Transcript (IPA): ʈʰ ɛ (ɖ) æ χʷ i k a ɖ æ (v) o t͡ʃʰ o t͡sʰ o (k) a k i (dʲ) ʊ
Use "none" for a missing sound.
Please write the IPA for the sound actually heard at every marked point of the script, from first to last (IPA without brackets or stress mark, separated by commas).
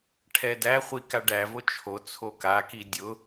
d, v, k, dʲ